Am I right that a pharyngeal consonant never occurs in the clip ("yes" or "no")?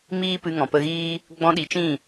yes